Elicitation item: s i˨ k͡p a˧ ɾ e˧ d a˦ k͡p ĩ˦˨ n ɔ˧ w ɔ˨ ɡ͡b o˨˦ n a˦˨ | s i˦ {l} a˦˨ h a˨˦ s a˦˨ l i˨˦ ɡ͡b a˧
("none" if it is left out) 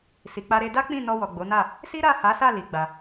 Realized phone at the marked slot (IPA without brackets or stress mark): ɾ